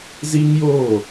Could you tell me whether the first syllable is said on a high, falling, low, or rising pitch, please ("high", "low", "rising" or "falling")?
high